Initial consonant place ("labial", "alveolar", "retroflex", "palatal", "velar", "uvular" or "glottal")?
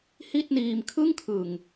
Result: glottal